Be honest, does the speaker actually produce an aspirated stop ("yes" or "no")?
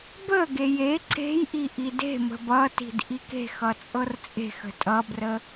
no